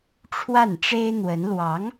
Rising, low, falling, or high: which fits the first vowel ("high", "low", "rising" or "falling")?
falling